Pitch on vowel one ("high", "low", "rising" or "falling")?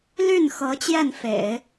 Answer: falling